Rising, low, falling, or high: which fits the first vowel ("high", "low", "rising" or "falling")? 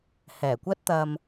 low